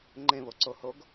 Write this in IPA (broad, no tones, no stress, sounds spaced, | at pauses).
ŋ͡ǃ ẽ β o ǀ o h o ɡ